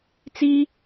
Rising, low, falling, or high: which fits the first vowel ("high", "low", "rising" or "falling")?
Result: high